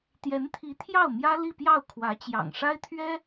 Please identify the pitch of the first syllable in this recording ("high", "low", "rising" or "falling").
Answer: rising